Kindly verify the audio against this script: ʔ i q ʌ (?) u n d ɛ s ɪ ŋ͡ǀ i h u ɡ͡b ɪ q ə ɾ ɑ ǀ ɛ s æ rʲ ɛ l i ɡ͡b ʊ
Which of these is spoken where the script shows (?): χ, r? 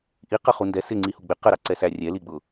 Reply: χ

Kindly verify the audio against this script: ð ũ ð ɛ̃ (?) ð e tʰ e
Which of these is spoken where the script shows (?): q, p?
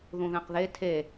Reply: q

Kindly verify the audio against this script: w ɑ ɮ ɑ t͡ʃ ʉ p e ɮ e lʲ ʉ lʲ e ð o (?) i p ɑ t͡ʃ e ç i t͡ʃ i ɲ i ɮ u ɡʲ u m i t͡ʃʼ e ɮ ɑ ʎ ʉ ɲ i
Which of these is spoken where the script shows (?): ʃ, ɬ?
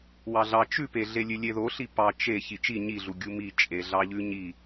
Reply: ɬ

